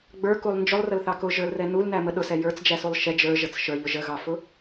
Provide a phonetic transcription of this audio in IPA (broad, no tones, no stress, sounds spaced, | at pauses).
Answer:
ɡ͡b ə˞ k u lˠ n d͡ʒ ʊ lˠ r ə l θ ɑ k ʊ ʒ ə˞ l r ɛ n u l n æ m ə ɗ ʊ s ɛ j ə˞ t͡s d͡ʒ æ s u lˠ ʃ ɛ d͡ʒ ə˞ ʒ ə t͡s ʃ ə˞ ʎ ʊ ʒ ə ɣ ɑ f ʊ